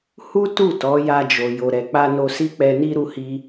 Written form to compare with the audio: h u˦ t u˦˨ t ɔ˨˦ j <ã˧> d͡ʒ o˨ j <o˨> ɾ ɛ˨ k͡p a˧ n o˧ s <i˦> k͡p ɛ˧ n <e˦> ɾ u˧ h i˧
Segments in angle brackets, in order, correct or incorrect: incorrect: a˧, correct, correct, incorrect: i˦

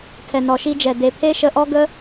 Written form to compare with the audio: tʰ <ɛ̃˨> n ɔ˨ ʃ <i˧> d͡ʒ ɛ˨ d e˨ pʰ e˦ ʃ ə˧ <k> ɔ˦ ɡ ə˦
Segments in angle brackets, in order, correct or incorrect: incorrect: ɛ˨, correct, incorrect: ʔ

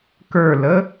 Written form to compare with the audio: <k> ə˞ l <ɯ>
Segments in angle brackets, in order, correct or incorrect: correct, incorrect: ə

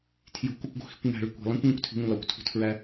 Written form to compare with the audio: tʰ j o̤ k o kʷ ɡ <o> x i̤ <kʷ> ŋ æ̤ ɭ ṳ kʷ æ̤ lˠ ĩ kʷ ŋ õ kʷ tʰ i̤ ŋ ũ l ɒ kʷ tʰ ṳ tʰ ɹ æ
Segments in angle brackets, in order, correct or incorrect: incorrect: o̤, correct

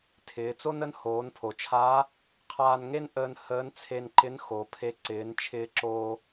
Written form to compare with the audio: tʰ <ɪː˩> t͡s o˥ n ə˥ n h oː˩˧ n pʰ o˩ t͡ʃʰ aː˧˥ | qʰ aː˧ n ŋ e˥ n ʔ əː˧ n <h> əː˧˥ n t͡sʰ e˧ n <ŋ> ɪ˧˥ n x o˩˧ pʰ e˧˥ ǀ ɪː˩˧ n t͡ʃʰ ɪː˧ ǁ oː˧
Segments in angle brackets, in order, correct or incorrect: incorrect: ɪː˩˧, correct, incorrect: ǃ

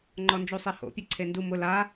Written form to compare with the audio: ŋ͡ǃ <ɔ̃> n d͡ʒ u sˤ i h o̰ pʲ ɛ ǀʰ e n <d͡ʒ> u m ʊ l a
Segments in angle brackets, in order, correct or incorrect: incorrect: ɔ, incorrect: d

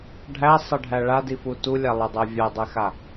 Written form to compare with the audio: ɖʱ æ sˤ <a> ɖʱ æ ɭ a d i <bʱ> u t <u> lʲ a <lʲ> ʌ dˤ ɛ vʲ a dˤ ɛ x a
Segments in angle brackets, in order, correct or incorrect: incorrect: ʌ, incorrect: f, correct, incorrect: lˠ

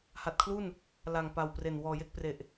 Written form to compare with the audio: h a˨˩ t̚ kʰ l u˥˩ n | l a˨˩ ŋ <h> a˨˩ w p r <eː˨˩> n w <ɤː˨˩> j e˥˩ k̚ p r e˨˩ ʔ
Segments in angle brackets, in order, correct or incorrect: incorrect: p, incorrect: e˨˩, incorrect: ɔː˨˩

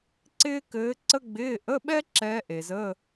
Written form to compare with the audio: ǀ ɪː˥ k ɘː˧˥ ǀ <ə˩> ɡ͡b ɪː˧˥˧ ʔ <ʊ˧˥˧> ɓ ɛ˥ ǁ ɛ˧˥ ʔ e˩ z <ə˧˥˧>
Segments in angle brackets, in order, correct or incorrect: incorrect: ə˥, incorrect: ə˧˥˧, correct

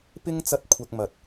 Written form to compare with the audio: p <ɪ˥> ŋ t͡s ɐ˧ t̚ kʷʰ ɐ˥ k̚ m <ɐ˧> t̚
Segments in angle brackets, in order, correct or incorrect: correct, correct

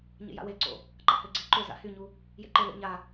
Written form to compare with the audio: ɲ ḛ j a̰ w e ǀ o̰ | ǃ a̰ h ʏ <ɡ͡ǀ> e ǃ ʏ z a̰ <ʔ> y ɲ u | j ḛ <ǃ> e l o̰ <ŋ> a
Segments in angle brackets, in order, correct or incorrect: correct, incorrect: h, correct, incorrect: ɲ

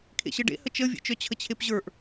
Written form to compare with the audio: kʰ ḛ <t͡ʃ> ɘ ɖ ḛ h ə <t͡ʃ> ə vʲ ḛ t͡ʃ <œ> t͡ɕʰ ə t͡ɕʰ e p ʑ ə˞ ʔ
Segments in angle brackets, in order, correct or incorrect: incorrect: ɕ, correct, correct

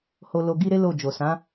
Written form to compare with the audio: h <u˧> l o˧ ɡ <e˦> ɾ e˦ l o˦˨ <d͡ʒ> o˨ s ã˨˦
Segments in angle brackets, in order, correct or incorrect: incorrect: o˧, incorrect: i˦, correct

